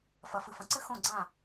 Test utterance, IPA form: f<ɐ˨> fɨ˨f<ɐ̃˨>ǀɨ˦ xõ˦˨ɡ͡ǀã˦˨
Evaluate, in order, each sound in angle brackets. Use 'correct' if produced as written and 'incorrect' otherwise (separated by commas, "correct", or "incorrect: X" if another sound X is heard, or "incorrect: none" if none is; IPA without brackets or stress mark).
correct, correct